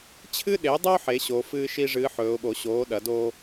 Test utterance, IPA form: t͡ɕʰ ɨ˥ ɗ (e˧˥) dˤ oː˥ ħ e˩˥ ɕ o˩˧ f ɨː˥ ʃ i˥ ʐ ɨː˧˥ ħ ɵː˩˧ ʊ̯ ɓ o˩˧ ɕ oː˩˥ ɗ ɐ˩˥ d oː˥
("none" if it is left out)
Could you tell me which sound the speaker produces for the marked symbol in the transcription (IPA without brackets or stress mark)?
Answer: e˩˥